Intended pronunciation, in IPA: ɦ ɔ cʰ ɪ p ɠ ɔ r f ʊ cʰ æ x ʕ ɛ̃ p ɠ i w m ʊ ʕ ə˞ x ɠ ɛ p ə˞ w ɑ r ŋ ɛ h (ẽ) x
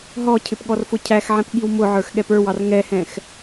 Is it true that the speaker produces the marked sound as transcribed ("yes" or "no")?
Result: no